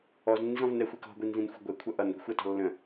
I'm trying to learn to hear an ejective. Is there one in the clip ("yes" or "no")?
no